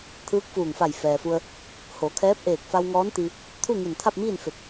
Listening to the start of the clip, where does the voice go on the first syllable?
rising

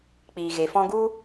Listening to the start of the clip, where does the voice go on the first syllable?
low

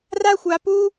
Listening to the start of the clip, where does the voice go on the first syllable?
high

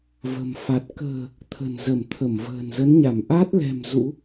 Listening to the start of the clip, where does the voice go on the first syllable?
low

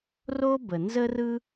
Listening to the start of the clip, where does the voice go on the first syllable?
high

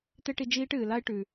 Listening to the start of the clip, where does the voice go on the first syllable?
high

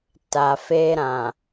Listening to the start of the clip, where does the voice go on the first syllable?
low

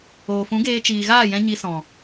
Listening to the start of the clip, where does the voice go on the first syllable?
low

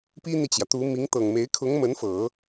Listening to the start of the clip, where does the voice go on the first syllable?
high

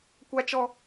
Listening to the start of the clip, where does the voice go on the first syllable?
high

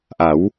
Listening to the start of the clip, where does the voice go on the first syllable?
rising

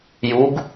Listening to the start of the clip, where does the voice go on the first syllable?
rising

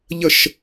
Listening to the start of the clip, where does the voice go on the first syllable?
falling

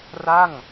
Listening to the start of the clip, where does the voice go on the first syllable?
falling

